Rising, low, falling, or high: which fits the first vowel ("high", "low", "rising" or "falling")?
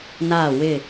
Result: falling